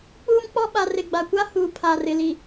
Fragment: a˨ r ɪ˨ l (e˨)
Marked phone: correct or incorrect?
incorrect: i˨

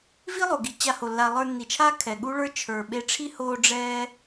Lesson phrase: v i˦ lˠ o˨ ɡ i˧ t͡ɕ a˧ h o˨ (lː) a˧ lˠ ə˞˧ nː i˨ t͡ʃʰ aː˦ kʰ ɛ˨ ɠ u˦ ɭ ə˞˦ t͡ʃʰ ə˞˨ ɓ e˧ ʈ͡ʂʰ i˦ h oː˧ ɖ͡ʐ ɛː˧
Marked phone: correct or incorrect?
correct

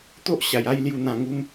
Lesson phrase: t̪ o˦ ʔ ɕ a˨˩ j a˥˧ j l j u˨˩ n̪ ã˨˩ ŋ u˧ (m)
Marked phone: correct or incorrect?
correct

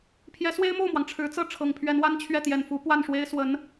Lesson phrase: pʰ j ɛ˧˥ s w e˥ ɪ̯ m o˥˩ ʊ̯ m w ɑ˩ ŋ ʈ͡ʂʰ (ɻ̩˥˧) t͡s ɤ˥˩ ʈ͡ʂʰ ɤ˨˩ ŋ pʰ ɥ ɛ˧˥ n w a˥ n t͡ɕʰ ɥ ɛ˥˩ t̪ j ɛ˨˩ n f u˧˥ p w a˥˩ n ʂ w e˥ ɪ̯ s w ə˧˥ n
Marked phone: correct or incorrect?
incorrect: ɻ̩˧˥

